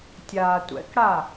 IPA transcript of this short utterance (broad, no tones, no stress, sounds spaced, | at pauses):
tʲ aː tʷ ɛ̰ k ɽ a